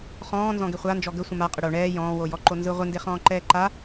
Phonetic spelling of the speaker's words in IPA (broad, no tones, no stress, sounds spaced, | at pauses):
χ ɔ̃ː n z ɔ̃ ɡ e χʷ a n d͡ʒ ɔ ɡ ə sʷ ə̃ m a qʼ ə ɽ o ɳ ɛː j ɔ̃ː w o j ɔ ǃ o n z ɯ ʁʷ ɪ n d e χ ɔ̃ː ǃ ɛː ǃ a